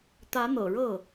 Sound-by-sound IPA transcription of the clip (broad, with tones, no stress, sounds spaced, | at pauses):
t̪ ä˧˥ n̪ ɤ̰˨˩ ɻ ɤ˥˩